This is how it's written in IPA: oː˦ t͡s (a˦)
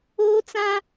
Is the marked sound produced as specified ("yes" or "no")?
no